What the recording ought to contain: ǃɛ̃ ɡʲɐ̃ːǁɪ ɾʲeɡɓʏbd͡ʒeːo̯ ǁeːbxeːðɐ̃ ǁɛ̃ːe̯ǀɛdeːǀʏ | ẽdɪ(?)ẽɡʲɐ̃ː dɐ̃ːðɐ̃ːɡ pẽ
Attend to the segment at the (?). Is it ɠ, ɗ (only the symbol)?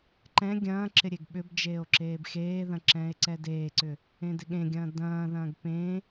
ɠ